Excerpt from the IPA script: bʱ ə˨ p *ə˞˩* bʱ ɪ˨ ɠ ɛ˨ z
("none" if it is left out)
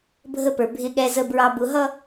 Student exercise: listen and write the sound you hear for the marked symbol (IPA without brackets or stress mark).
ə˞˩